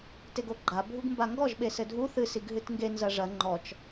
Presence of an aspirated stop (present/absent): absent